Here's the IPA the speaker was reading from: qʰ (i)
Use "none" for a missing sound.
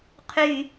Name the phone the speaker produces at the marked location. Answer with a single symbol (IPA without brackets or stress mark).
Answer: y